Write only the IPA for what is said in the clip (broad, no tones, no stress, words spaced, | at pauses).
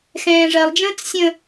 xɛ̃ːʐɜlˠd͡ʒə̃ːt͡s sʲə̃